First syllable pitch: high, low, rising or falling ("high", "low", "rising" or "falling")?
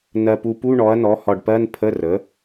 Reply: low